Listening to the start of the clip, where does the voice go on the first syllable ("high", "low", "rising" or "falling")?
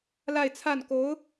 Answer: falling